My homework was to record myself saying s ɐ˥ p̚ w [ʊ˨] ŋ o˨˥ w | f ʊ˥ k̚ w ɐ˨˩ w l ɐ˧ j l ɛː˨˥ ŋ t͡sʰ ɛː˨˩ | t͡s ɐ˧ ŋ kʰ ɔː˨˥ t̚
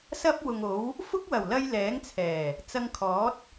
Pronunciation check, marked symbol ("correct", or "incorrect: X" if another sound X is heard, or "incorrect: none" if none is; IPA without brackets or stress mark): correct